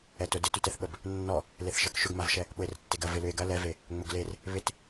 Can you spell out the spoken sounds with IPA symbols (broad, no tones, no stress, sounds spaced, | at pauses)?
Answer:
ɛ t ʊ d ɪ t y t ɛ θ ɓ ə b | nː ɔ | l e θ ʃ ə k ʃ ʏ ɡ m a v ʃ ɛ | ɓ ʊ e̯ r ə tː e ɡ ɐ v ɪ l ʏ e̯ ɡ ɐ l ɛ v e | ŋ͡m ʊ ɡ l e r | β ɪ t